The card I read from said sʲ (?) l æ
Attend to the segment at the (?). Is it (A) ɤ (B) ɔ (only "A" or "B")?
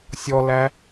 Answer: B